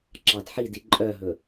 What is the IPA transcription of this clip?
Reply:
ǁ ɑ d ħ i d i ǃʼ œ ɦ ɵ

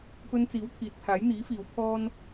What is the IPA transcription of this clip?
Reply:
p ɵ˧ n t͡s iː˨˥ w t̪ʰ iː˨ t̚ pʰ aː˨˥ j n̪ iː˨˥ f iː˨˧ w pʰ ɔː˥ n

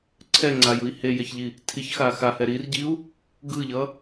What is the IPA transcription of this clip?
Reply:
ǀʰ ɛ ŋ͡ǀ a j ɯ i̯ h e j e ç ʎ i | tʰ i ç x a x a h ɛ ɾ i r ɟ i u̯ | ɡ ɯ ʎ ʌ

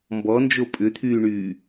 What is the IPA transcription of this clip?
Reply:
m b ɔ n d͡ʒ o pʼ ʏ t̪ʰ yː ɳ yː

